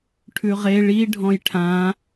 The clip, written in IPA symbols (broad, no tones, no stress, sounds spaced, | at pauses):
ʈʰ ʉ ʁ e ɭ i ɖʱ ɔ̃ j ʈʰ ã